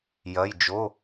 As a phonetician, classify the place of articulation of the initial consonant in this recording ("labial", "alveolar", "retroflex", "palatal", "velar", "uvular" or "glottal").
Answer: palatal